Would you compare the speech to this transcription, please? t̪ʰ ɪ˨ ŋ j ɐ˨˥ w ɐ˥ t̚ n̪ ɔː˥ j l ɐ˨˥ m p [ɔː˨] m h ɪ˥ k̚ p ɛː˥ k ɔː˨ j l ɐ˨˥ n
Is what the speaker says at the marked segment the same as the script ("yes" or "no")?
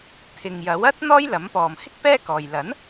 yes